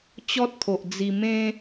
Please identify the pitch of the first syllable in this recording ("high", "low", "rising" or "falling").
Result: high